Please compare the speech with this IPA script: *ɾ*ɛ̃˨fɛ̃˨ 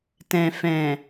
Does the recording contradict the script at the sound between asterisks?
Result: yes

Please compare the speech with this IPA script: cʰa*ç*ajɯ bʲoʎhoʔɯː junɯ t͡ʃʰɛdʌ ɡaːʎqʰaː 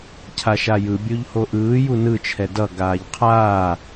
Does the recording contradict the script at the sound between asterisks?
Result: yes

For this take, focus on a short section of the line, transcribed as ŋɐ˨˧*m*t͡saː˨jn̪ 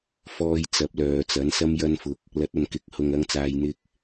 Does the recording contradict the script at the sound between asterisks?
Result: yes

